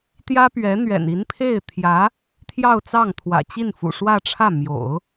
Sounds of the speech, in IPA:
t̪ j ä˥ p ɥ ɛ˧˥ n̪ ɥ ɛ̰˨˩ n i˧˥ n pʰ e˥˩ ɪ̯ t̪ʰ j ä˧˥ | t̪ʰ j ɑ˥˧ ʊ̯ t͡s ɑ˥˩ ŋ t̪ʰ w ä̰˨˩ t͡ɕ i˥˩ n f ṵ˨˩ ʂ w ä˥˧ ʈ͡ʂʰ ä˥˩ m j o̰˨˩˦ ʊ̯

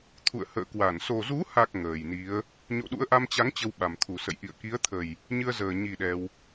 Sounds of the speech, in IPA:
t̪ʰ ṵ˧˨ ə̯ h ə̰ː˧˨ k w a˧˩ n s o˨˩ z u˨˦ h a˨˩ k̚ ŋ əː˨˩ j n i˨˦ ə̯ | ɲ o̰˧˨ ɗ ṵ˧˥ ə̯ ʔ a˧ m t͡ɕ a˨˦ ŋ t͡ɕ ə˧ w ɓ a˨˩ m t̪ʰ u˨˩ s ə̰˧˨ j ʔ ḭ˧˨ ə̯ k i˨˦ ə̯ t̪ʰ ə˨˩ j | ɲ ɨ˧ ə̯ z əː˨˩ ɲ i˨˩ ɗ ɛ˧ w

